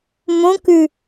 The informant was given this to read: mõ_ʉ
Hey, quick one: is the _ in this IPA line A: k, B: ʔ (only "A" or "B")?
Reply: A